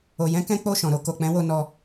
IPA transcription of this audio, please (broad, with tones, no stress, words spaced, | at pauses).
o˧ jɛ̃˦kɛ̃˦ k͡po˦˨ʃɔ̃˨ɾo˧ ko˨k͡pɛ̃˨˦wo˧ nɔ˧